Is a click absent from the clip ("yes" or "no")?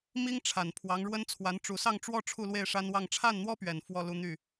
yes